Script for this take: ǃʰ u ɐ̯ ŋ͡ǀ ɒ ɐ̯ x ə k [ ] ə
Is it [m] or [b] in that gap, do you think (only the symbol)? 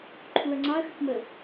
m